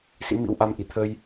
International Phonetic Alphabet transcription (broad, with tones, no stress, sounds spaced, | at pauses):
s ḭ˧˥ m ḭ˧˥ w ʔ a˧ m ʔ i˧˩ t̪ʰ ə˧ j